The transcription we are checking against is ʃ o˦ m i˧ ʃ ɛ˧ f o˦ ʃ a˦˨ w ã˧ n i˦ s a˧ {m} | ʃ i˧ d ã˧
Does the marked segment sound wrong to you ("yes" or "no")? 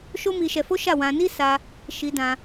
yes